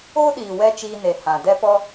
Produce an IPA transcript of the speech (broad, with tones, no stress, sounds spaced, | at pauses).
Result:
oː˦ ɗ iː˨ w ɛ˧ t͡ʃ iː˧ n e˨ h ã˨ d ɛ˦ p ɔ˦